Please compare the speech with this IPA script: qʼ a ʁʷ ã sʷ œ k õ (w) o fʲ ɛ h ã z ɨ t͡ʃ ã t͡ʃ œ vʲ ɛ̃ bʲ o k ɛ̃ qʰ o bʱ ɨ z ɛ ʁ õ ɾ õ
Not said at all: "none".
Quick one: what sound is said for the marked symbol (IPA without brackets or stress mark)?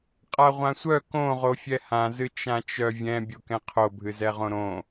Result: ʁ